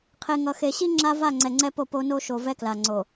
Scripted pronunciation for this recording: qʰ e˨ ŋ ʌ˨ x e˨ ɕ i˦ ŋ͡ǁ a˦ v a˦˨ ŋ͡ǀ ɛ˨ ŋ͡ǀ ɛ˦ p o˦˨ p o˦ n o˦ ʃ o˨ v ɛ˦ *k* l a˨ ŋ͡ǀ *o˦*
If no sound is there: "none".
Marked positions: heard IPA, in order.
k, o˨

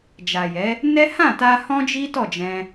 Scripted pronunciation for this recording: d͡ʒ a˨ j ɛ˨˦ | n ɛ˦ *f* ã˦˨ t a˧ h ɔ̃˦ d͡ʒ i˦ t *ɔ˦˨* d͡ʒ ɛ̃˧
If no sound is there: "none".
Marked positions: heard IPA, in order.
h, ɔ˦˨

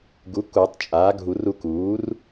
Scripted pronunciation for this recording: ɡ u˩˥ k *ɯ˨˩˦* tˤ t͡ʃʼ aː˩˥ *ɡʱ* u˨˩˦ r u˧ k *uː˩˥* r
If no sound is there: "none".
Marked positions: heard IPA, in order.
u˨˩˦, ɡʱ, uː˩˥

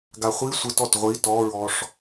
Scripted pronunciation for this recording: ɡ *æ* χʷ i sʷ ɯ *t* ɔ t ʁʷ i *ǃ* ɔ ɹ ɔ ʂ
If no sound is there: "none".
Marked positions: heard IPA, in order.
a, t, t

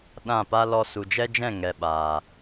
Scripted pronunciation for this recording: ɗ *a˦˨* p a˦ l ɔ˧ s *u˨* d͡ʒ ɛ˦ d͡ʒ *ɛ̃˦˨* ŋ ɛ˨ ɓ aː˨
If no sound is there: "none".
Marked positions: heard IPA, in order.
ã˦˨, u˨, ɛ̃˦˨

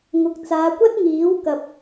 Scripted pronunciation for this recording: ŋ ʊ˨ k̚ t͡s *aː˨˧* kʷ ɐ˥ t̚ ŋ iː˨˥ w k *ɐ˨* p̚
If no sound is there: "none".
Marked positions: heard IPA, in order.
aː˨˧, ɐ˨

